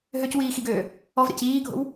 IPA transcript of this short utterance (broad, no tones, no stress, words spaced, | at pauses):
ɦøcwiːxiɡøː | ɔvɾḛc iːɡʱo̰w